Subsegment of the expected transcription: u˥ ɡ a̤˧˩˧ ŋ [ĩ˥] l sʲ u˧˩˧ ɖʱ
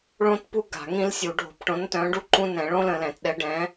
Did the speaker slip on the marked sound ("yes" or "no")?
no